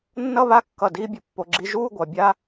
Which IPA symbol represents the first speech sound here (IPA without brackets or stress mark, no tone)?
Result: nː